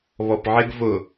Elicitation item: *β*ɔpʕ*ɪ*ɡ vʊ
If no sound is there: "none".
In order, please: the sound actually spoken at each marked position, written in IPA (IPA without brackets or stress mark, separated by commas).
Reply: β, ɪ